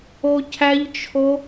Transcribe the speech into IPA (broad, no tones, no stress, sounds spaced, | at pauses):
o cʰ æ ʎ t͡ʃʰ o